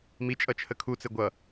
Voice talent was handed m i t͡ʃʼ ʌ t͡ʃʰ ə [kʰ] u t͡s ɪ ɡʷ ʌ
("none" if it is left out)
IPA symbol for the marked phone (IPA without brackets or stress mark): kʰ